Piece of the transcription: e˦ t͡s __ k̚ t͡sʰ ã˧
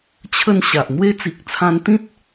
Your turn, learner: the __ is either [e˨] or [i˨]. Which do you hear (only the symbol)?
i˨